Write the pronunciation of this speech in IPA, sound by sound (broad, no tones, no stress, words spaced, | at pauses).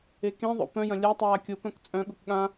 ekẽðˤo̰ pœ̃jɐ̃ lʲatˤaː kʲopœ̃k t͡sʼœ̃ɠʊk ɠã